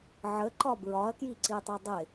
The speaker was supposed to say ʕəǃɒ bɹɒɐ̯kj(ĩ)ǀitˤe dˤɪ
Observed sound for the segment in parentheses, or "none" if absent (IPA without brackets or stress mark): i